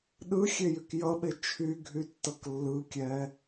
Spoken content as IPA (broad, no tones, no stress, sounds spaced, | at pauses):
ɗ ɯ xʲ e j y k j ʌ ɓ e t͡ʃʰ y ɡʱ y tː ʌ k lː ɯ kʲ ɛ